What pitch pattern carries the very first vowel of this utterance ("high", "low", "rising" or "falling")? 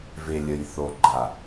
low